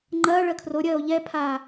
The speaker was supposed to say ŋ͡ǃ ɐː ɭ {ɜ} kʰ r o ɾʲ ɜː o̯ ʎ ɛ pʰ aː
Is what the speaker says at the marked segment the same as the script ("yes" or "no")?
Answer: yes